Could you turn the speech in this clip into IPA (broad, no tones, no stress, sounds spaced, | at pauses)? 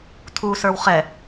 tʰ u s ə˞ w χ ɛ